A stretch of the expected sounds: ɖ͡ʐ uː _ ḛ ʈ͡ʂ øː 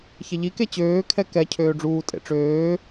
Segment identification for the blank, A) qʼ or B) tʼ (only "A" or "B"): B